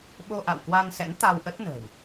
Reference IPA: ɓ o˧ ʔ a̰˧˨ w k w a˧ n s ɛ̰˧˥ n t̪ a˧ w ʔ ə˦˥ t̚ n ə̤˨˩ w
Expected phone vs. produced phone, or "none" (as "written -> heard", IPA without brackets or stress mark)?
none